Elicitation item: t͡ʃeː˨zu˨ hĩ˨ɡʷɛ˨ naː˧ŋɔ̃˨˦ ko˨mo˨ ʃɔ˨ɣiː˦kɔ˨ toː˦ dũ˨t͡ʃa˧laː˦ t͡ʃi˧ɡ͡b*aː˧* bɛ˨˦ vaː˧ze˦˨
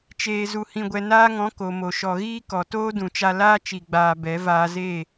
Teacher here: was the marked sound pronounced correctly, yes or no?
yes